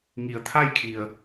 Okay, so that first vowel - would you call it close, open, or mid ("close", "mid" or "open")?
close